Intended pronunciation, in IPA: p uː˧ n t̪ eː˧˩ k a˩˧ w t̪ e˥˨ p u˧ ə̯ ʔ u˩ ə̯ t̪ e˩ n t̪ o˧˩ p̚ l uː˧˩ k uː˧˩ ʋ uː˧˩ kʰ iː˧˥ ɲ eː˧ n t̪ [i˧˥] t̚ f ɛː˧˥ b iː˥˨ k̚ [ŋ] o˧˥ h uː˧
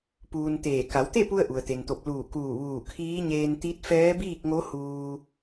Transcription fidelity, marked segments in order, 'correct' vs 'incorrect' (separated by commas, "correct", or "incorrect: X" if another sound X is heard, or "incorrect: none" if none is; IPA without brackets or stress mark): correct, correct